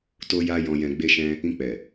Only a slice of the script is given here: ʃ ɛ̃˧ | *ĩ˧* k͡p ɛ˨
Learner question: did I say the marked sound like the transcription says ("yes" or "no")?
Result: yes